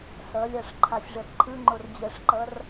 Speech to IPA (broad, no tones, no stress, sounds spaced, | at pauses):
s ʌ lʲ a ʂ ǃʰ a sʲ ʐ ɛ p ǃʰ ɯ ŋ͡ǃ o r d͡ʑ ɛ ʂ ǃ ʌ r